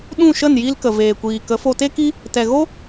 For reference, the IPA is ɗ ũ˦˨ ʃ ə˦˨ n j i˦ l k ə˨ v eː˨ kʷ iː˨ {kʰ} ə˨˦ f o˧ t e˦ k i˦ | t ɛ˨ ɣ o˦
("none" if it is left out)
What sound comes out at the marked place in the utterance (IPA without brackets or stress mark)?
k